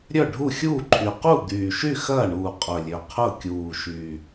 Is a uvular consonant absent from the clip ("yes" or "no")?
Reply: no